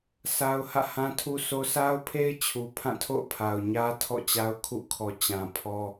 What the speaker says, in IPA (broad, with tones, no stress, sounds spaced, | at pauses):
s a˦ ʊ̯ h ä̰˦˨ h ã˦ tʰ u˦ s o˦ s a˦ ʊ̯ pʰ e˦ ɪ̯ t͡ɕʰ u˨ pʰ ã˦˨ tʰ o̰˦˨ ʊ̯ pʰ a˨ ʊ̯ ɲ ä˦ tʰ ɔ̰˦˨ t͡ɕ a˦ ʊ̯ kʰ ṵ˦˨ kʰ ɔ˨ t͡ɕ ã˨ pʰ ɔ˦